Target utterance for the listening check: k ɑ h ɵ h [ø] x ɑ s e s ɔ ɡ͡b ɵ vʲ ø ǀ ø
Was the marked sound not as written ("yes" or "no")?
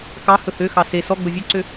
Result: no